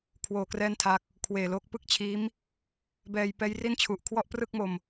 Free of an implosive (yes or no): yes